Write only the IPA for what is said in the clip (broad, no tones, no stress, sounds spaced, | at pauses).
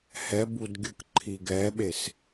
h ɛ b u d ɡʲ ɯ k ǃʰ i ɡ ɛ ɓ e s